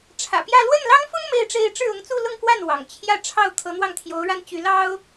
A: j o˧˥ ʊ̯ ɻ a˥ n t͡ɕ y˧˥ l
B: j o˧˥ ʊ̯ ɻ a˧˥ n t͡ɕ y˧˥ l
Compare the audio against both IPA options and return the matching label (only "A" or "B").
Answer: A